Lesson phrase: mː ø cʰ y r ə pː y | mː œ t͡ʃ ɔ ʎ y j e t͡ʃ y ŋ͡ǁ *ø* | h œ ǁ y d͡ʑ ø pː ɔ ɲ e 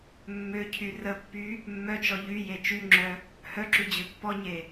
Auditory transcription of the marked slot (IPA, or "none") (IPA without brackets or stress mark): œ